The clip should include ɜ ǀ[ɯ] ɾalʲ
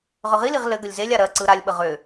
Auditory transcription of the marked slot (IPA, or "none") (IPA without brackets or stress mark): ɯ